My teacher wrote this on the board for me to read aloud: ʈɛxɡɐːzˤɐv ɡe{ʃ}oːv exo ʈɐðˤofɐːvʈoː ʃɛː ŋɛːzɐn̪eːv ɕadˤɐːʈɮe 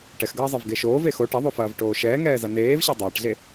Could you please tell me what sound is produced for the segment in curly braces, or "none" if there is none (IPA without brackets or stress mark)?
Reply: ʃ